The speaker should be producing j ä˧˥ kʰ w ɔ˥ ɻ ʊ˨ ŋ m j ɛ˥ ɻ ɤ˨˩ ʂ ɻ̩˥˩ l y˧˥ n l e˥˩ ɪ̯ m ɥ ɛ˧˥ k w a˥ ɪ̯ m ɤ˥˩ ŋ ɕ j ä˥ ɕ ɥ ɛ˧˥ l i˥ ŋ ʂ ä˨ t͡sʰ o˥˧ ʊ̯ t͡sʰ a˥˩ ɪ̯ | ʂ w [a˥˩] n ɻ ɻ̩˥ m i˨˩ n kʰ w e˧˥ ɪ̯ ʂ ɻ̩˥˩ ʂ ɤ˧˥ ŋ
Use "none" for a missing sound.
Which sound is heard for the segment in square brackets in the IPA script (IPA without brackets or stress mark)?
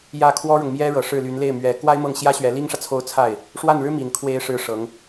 a˥˩